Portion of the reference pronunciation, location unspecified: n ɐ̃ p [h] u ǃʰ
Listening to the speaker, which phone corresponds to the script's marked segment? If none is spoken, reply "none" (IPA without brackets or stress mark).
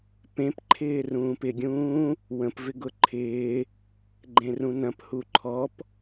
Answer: h